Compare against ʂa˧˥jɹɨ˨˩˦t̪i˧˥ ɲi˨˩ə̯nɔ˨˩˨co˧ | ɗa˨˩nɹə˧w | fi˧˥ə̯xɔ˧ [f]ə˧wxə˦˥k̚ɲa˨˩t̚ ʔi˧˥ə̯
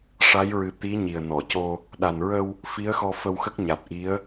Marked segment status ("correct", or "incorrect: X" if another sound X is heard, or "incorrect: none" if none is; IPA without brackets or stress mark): correct